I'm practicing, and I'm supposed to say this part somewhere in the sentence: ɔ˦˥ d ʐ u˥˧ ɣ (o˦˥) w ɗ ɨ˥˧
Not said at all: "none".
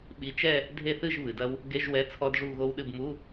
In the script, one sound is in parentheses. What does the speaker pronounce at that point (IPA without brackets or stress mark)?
o˦˥